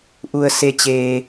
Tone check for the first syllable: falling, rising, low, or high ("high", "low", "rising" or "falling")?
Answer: low